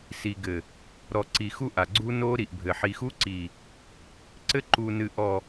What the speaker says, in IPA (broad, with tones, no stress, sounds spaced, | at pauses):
s i˨ ɡ ɘ˨ | ɾ ɔ˨ ǀ i˨ x u˦ ʔ a˨ ɡ͡ǀ u˦ n o˦ ɾ i˨ ʔ bʱ ɘ˨ ħ i˨ x u˦ ǀ i˨ | ǀ ɘ˦ ǃ u˨ n ɨ˨ ʔ ɔ˨